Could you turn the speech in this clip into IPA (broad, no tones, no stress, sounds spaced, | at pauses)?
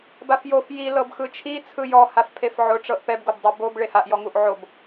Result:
b a f j o f j i l ɤ b x ɯ t͡ʃʰ i t͡sʰ ɯ j ɔ h a f pʰ e f ʕ o ʈ͡ʂ ɤ ʔ p ɛ b ɡ o b dˤ o b o b ɭ e h a ʔ j ɔ ŋ u ʔ ʕ o b